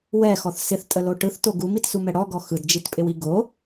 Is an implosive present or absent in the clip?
absent